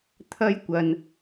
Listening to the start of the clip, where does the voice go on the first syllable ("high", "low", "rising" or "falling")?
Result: high